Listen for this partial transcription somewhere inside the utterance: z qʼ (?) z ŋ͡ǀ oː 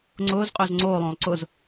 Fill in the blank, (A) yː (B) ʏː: B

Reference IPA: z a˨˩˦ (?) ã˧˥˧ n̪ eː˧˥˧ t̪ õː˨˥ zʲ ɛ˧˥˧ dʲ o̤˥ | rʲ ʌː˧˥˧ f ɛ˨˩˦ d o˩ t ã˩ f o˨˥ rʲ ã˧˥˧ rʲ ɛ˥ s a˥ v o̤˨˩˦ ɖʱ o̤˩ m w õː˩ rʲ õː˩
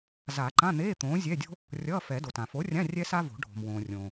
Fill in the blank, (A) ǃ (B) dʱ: A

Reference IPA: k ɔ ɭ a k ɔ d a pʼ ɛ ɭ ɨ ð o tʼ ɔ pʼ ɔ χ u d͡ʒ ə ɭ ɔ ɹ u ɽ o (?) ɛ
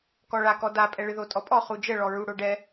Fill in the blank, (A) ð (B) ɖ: B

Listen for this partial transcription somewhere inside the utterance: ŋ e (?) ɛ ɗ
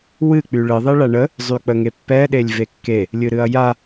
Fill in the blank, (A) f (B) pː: B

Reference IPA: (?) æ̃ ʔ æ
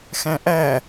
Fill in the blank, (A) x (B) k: A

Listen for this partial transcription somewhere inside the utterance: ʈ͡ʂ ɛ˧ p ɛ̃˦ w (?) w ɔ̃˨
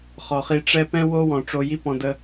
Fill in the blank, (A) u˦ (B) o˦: B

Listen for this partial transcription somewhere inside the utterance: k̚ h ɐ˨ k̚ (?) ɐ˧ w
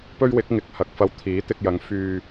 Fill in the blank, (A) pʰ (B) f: B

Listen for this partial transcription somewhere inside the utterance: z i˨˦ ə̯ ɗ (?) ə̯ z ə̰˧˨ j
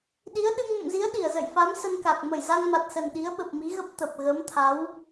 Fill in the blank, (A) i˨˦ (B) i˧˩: B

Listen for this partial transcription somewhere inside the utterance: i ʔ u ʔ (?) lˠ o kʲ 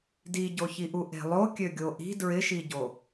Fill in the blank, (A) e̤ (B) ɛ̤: A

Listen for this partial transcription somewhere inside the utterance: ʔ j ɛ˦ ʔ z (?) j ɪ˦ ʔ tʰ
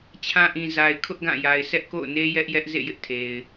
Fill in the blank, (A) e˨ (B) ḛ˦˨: B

